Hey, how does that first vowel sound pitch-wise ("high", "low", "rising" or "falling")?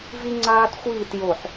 high